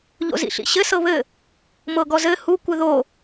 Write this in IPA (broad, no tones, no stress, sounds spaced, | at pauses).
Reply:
ʎ o̰ z ḭ ɬ ḭ ɕ ɘ s ɤ β ɘ | m ɤ ɡ ɔ z ɘ h u kʷ ɘ ð o